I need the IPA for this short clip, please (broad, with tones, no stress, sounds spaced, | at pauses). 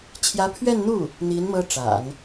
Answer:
t͡ɕʰ j ä˧˥ pʰ ɥ ɛ˥˧ n n̪ u˥˩ | n̪ i˧˥ n m ɤ˥ ʈ͡ʂ a̰˨˩˦ n